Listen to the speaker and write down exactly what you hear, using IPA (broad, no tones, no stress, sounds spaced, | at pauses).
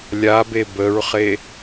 lʲ a b e b ə ɹ χ e